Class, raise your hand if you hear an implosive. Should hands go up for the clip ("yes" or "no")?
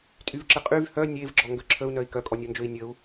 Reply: no